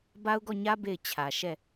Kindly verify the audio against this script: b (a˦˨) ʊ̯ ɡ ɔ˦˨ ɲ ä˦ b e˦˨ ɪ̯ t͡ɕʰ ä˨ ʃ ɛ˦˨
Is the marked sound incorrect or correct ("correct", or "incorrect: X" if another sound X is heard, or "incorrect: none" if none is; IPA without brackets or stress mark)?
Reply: incorrect: a˦